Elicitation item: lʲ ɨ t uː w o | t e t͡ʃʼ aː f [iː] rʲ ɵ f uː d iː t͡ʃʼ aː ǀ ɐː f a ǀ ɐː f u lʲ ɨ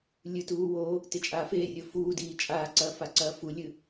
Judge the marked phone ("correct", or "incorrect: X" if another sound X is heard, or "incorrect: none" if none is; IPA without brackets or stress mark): incorrect: eː